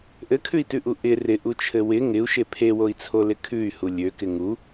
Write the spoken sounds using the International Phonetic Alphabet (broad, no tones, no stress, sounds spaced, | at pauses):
ʔ ɘ kʰ ʉ i̯ t ʉ ʔ u ʔ ɪ r ɪ ʔ u t͡ʃʰ ɘ w ɪ ŋ ɪ u̯ ʃ e pʰ e w o i̯ t͡sʰ o l ɪ kʰ ʉ y̯ h u lʲ ø k ɪ ŋ u